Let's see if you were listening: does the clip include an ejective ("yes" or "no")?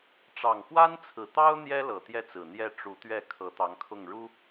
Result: no